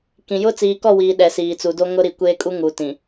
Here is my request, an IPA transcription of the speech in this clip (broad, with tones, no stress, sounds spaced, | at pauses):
k ĩ˨ j ʊ˦ t͡s iː˨ k ɔ˦˨ w iː˨ ɗ ɛ˨ s iː˨ t͡s u˨ d o˦ ŋ ʊ˦ ɾ i˨ kʷ eː˦ kʼ u˦ ŋ u˨ t ĩ˨